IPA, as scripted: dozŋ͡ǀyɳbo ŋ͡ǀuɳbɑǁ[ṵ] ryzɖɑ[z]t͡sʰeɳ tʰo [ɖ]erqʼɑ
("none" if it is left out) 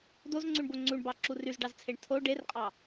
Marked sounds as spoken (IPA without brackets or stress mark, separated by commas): u, z, ɖ